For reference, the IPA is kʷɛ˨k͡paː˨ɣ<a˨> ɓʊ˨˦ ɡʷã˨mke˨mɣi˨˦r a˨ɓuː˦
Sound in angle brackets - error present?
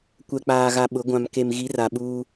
no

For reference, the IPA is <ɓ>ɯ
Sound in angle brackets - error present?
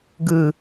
yes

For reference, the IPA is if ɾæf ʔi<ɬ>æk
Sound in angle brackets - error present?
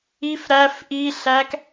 no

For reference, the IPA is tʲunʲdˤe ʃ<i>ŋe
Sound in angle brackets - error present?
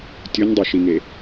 no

